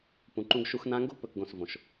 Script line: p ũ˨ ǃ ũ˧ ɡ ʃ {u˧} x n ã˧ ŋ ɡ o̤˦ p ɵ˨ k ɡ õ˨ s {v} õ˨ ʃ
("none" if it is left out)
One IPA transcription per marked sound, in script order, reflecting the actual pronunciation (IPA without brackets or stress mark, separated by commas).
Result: u˧, v